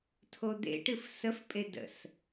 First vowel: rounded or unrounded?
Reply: rounded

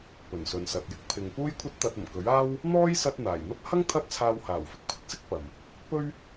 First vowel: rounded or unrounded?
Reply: rounded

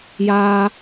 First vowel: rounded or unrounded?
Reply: unrounded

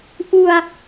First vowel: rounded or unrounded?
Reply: rounded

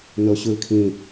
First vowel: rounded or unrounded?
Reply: rounded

